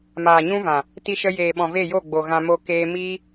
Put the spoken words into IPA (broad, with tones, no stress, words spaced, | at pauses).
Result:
maː˨ɲũ˦vã˨ | ti˧ʃə˧jeː˨ɓɔ̃˨ ve˦˨jo˦˨ɡ͡bo˨ɣã˧ mo˧keː˧ miː˦